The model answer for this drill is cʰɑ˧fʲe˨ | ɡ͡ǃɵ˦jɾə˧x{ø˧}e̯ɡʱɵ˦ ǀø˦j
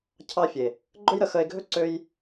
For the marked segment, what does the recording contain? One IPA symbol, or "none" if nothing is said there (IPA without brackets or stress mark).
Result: ə˧